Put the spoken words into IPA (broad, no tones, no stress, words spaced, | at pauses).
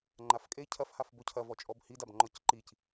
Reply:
ŋ͡ǃafkʼe cʰɐfhaf bocʰɐ vɔt͡ʃʼɔbhidab ŋ͡ǃɔcǃic